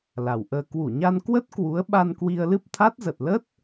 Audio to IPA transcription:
l a˨˩ w ʔ əː˧ k w u˧˩ ɲ a˧ n k w ə˦˥ t̚ k w u˨˦ ə̯ ɓ a˧ n k w i˧ ə̯ l ɨ˦˥ p̚ t̪ʰ a˦˥ t̚ z ə˨˩ t̚ l ə˦˥ t̚

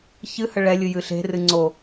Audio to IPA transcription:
ç ɨ h ə ɭ ɛ lʲ ɨ j ɨ ɬ e̤ r ɨ ŋ͡ǀ o

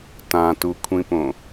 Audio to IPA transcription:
t ã t u kʷʰ ĩ p õ

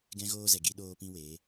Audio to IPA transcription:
ɡ ɛ̃˦ ɣ oː˦ z ɛ˨ ɡ i˧ ɗ oː˧ p ĩ˧ w e˨˦

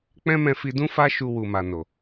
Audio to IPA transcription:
k͡p ɛ̃˦ m ɛ̃˧ f i˧ d ũ˦ f a˦ ʃ u˧ w u˨ m a˨ n o˨

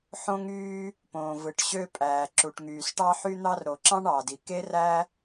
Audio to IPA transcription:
ħ õ˥ ŋ yː˥ | p õː˩ v ɯ˩ ʈ ɕ ø˥ pʼ æː˩ ǁ u˩ ʈ ŋ yː˩ s ʈ ɑ˥ ħ y˥ n̪ ɑ˥ r ɾ o˩ ǁ ɑ̃˥ ɳ ɑ˩ d i˩ k e˥ r æ˥

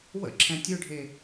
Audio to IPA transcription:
w ə̰ ǁʰ ɛ̃ tʲ ø ɖʱ e

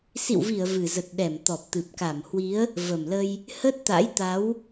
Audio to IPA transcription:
s ḭ˧˨ w v i˧˩ ə̯ v ɨ˨˩ z ə˨˩ t̚ ɗ ɛ˧˩ m t̪ ɔ˨˩ p̚ t̪ ɨ˨˩ p̚ k a˧˩ m h w i˨˦ ə̯ | v ə˨˩ m l ə˧ j | h ə˦˥ t̚ t̪ a̰˧˥ j t̪ a˨˦ w

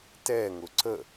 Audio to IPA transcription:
t ɛ ŋ ʊ ǀ ə

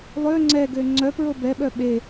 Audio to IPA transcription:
lˠ ø ŋ͡ǀ ɛ ɡ ø ŋ͡ǀ œ p ɹ o b ɛ ɓ œ ɓ e

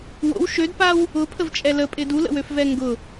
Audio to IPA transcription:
w o̰ w ʃ ø d p a w | ʊ pʰ ə v t͡ʃʼ ɛ l ə pʼ ɪ d u l ə̰ w ø f v ɛ ŋ ɡ ʊ

